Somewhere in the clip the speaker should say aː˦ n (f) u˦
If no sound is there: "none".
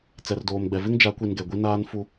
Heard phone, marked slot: f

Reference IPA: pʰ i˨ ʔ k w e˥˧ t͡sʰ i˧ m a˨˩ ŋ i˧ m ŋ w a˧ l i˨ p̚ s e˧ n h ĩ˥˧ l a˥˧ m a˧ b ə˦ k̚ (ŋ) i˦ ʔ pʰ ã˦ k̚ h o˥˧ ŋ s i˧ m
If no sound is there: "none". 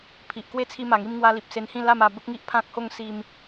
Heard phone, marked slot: ŋ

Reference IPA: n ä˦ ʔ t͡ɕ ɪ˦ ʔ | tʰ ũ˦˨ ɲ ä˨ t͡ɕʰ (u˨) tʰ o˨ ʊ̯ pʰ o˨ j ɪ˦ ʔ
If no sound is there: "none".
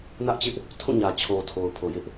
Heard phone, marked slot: o˨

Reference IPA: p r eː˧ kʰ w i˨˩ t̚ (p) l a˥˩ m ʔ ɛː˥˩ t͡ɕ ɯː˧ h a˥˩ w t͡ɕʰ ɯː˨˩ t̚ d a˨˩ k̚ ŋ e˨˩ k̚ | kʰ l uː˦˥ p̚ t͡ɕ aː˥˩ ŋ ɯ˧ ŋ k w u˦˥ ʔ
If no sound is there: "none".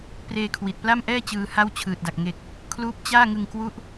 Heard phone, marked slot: p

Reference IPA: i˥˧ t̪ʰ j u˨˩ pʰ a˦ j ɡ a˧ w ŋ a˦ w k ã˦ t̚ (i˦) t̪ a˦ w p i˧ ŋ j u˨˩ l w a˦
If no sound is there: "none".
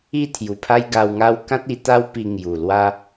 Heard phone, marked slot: i˧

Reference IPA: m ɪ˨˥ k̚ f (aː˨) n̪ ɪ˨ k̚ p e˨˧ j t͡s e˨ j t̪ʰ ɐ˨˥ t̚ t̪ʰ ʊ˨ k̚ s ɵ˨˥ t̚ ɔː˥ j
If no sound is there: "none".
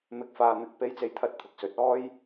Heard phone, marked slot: aː˨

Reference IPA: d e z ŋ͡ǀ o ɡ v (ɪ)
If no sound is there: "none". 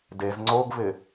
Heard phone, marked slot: ɪ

